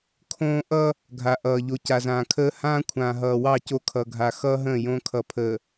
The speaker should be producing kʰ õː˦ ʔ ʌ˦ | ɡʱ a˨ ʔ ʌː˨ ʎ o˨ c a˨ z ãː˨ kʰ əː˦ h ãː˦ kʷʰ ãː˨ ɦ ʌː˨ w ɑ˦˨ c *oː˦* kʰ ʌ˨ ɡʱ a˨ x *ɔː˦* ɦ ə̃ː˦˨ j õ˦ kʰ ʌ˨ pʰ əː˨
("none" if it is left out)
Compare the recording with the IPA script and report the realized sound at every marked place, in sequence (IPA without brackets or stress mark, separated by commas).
o˦, ʌː˦